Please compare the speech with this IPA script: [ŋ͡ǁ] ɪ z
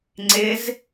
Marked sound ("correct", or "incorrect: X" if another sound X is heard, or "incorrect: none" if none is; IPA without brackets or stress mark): incorrect: ŋ͡ǀ